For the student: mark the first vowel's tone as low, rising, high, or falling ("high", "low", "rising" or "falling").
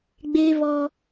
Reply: high